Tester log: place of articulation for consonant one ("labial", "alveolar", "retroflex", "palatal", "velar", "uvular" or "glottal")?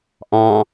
glottal